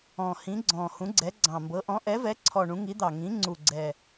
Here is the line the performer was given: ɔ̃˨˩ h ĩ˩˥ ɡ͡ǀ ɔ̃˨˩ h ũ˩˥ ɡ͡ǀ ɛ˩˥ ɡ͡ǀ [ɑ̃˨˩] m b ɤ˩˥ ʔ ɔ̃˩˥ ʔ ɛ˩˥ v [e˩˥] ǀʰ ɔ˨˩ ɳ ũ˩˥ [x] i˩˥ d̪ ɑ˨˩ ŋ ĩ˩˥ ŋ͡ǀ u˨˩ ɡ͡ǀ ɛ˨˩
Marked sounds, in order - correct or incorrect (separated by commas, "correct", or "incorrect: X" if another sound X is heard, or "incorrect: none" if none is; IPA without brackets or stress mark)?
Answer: correct, incorrect: ɛ˩˥, incorrect: ŋ